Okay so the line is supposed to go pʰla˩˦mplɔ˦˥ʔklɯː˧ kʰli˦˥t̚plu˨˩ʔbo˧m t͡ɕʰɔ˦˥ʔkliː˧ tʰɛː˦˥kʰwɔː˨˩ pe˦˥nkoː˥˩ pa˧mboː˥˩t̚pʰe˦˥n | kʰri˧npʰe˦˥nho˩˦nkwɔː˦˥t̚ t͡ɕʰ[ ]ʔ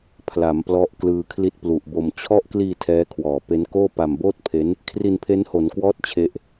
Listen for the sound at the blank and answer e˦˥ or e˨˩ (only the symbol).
e˦˥